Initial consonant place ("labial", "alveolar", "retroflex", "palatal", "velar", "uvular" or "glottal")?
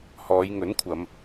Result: glottal